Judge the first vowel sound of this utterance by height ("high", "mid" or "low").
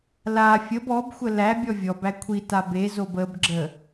low